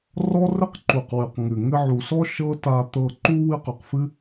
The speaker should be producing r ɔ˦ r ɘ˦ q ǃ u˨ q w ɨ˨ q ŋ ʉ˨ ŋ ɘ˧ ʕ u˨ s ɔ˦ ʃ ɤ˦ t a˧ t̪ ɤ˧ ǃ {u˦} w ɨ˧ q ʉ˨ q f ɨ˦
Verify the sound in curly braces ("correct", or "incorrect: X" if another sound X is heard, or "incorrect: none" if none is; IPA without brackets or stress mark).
correct